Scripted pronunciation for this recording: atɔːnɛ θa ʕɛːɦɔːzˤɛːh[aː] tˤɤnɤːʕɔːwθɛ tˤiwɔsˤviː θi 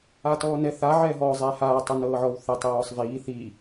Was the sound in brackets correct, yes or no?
yes